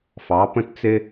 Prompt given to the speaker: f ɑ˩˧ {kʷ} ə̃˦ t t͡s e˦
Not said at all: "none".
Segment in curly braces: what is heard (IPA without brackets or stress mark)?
p